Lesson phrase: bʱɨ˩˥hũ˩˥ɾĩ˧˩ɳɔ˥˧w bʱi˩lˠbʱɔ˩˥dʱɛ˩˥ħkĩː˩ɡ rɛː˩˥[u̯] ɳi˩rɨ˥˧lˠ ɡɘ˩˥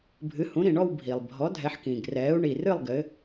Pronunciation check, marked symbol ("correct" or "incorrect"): correct